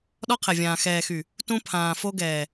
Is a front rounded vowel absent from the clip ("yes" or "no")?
no